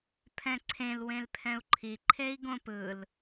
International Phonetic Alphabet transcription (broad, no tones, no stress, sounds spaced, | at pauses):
pʰ ɛ̃ ǀʰ ẽ l w ẽ l pʰ ɛ̃ u̯ ǃʰ i ǃʰ e i̯ ɡ õ p ɯ l